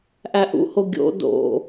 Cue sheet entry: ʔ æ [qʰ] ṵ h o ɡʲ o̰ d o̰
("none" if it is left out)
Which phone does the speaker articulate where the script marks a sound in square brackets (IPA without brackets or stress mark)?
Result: ʔ